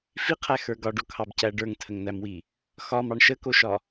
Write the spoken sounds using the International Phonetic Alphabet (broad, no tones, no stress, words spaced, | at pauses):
fiqʰæxə˞ ɡɒɖokʰɑbcæ ɖə˞ŋtʰəŋn̪æmwi | xɒmɑɳ ʃəkoʃɒ